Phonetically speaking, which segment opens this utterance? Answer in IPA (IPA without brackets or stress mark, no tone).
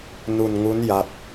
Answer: n